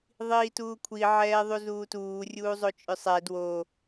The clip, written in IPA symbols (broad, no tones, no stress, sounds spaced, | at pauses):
ðˤ iː t uː kʷʰ i ʕ ɛː ðˤ u z uː t uː rʲ uː zˤ o t͡ʃʼ ʏ sˤ ɛ d w o